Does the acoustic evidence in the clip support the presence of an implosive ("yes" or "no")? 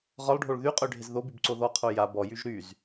no